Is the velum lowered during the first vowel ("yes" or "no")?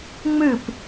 no